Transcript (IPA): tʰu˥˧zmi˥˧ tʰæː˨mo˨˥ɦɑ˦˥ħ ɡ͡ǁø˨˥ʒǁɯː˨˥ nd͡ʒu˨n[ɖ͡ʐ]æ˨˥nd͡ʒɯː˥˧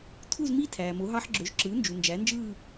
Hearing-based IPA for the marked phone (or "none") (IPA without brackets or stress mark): d͡ʒ